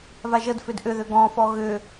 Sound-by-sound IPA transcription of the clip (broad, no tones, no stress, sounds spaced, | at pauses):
v a ʒ ə d f ʏ d ʔ ʏ ð ʏ ɡ ɔ̃ f ɔ ɣ ʏ